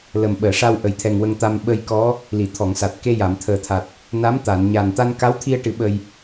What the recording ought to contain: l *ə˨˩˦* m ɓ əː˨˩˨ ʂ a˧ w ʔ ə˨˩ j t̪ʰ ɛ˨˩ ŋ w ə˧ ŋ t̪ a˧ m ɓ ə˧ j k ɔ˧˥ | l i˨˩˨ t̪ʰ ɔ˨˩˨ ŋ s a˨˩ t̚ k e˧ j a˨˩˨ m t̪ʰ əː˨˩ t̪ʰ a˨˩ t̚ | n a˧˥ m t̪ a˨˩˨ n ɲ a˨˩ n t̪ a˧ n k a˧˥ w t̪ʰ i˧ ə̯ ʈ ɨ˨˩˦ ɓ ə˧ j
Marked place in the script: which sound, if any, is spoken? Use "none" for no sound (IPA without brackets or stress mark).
ə˨˩